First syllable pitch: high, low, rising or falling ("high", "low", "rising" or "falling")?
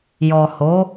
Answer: low